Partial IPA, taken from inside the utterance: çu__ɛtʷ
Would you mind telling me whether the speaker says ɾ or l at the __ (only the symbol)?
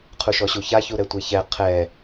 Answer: ɾ